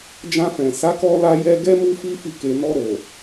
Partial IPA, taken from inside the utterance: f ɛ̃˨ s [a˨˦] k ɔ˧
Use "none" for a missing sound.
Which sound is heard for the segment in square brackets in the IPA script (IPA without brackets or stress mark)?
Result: a˨˦